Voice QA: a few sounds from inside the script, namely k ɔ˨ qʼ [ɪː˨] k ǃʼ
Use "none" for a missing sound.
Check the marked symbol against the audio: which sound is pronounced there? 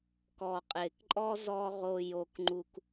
ɪː˨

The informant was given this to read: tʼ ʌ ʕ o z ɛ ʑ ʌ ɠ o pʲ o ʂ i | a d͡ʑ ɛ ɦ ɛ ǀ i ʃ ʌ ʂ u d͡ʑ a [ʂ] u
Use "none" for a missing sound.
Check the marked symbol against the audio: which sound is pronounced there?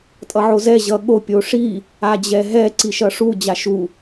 ʃ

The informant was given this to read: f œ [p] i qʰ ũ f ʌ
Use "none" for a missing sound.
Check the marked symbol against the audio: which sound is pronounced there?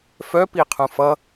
p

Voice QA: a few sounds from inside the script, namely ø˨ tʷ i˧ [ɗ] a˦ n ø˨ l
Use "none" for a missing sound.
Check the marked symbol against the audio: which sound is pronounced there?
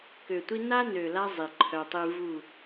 n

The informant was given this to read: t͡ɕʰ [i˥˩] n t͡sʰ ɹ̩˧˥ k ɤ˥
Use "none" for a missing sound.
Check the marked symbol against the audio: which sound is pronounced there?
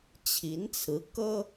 i˧˥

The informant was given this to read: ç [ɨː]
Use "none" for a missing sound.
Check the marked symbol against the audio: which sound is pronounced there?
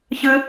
ɨ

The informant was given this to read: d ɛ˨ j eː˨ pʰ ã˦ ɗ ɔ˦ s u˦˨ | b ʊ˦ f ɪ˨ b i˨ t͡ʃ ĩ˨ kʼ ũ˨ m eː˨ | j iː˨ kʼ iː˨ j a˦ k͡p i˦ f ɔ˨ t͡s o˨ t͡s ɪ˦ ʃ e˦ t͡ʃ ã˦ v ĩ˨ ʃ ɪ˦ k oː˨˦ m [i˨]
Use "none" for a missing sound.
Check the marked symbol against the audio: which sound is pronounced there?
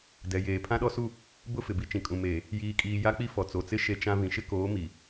i˨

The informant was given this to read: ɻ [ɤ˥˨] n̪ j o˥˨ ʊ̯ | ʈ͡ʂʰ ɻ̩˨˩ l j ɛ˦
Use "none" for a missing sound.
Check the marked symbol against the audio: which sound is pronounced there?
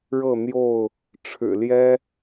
ɤ˥˨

